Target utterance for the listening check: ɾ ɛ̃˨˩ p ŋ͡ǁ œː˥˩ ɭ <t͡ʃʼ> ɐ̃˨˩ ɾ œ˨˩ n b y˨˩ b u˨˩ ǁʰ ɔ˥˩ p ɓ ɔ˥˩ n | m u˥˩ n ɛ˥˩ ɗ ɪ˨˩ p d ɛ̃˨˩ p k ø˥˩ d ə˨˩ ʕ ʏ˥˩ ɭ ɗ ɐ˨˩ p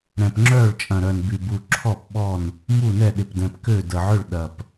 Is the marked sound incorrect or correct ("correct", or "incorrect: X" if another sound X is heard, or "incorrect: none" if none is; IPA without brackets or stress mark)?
correct